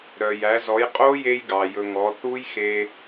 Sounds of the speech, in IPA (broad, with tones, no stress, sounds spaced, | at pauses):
ɾ œ˩ j æ˩˧ z ɔ˩˧ j qʼ o˦˥ j e˧ j ɡ ɑ˩ j ɵ˩ ŋ ɔ˩˧ θ u˦˥ j x e˧